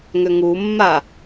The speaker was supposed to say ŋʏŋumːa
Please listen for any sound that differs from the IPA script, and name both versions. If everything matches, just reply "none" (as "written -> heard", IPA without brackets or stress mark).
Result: none